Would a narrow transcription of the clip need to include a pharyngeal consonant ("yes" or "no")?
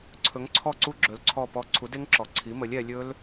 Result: no